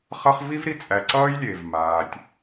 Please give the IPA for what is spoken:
χ ʌ˦ χ v i˦ v ɾ i˨ t͡sʼ æ˨ ǀ ʌː˦ j lʲ e˨ v m aː˨ tʲ

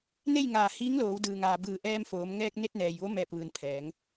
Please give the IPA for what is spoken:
n e˥˨ j ŋ aː˧˩ h iː˧˥ ŋ l oː˩˧ w d ɯː˩ ŋ aː˩ b ɯː˧˩ ʔ ɛː˧ m f oː˩˧ m ŋ ɛː˧ k̚ n e˧ t̚ n ɛː˩ j ʋ o˧˥ m ɛː˧˩ p̚ ʋ ɯː˩ n pʰ ɛː˩˧ ŋ

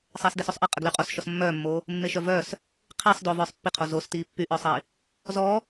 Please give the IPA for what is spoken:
sˤ eː s d e s o sˤ ʔ i qʼ ə ɡ l y qʼ o s ʃ ɔ s mː œː mː oː | mː e ʃ œ v œː s | qʰ i sˤ d o v œː sˤ pː i qʰ o z o s t iː pː y ʔ œː sˤ i | z ɔ

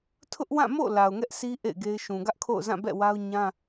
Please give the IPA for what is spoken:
tʰ ʊ˦ ʔ w ã˦˨ m o̰˦˨ l a˨ ʊ̯ ŋ ɛ˦ ʔ s i˦ ʔ ḛ˦˨ ɪ̯ ɡ e˦ ɪ̯ ʃ ũ˨ ɡ ä˦ ʔ kʰ o̰˦˨ ʊ̯ z ã˦˨ b ɛ̰˦˨ w a˦ ʊ̯ ɲ ã˦

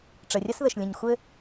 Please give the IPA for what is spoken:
ʈ͡ʂ ə˨ rʲ ɐ˦ s ð ə˨ ʃ lʲ ə̃˨ ɲ xʷ ɘ˧

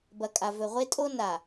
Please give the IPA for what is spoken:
b ɐ˨ kʼ a˨ v ɵ˨ ʁʷ e˦ tʼ o˦ n a˨

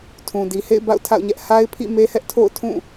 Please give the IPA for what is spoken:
tʰ ũ˨ d i˨ h ḛ˦˨ ɪ̯ b a̰˦˨ ʊ̯ tʰ a̰˦˨ ʊ̯ ɲ ɛ˦ ʔ h a˦ ɪ̯ pʰ ḭ˦˨ m e˦ h ɛ˦ ʔ tʰ o̰˦˨ ʊ̯ tʰ ũ˦˨

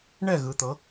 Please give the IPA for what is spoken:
ɳ ɛ˦˨ ɣ ɯ˩˧ t̪ ɤ˩˧

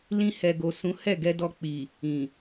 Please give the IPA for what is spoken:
l ĩ˧ h ɛ˨ ɡ o˨ s ũ˨˦ h ɛ˦˨ ɡ ɛ˧ d ɔ˧ k͡p i˨ | ĩ˨

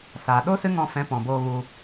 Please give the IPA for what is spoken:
s aː˨ ɗ o˦ s ɨ˦ ŋ ɔ̃˧ f ɛ̃˨˦ p ɔ̃˨ b oː˧ ɣ u˧

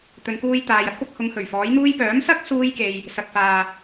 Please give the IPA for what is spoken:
t̪ ɵ˨ n k uː˧ j t̪ aː˨ j ɐ˥ t̚ p ʊ˧ k̚ h ʊ˨˧ ŋ h ɵ˨˩ ɥ f ɔː˨˥ j n̪ uː˥ j p œː˨˥ m s ɐ˥ k̚ s uː˥ j k e˧ j | s ɐ˧ k̚ f aː˧

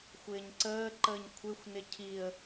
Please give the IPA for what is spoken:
xʷ ɪː ɲ ǀ əː ǃ əː ɲ kʷʰ ɪ xʷ n ɪ cʰ i ə̯

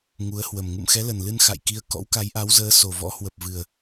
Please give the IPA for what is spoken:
ŋ u˨˦ ə̯ h w ə˨˩ m ŋ ṵ˧˨ m x ɛ˨˦ l ə˨˩ n l ɨ˧ n x a̰˧˨ j k i˧ ə̯ k ɔ̰˧˥ w k a˨˦ j ʔ a˨˦ w z əː˨˦ s o˨˩ v ɔ̰˧˥ h w ə˨˩ p̚ v ɨ˨˩ ə̯

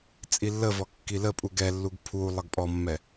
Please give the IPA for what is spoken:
t͡sʼ i lː ə v ɔ kː i l ə pʼ u ɡ ɛ lː u ɡ pʰ u lˠ ə ɡ pʼ ɔ mː ɛ

